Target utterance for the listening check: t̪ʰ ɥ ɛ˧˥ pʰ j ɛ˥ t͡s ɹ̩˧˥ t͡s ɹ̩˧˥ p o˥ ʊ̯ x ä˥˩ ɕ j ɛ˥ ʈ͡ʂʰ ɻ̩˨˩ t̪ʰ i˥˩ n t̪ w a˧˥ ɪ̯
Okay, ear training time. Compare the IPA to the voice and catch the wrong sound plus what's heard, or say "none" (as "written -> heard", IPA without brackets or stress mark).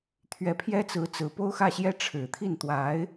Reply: none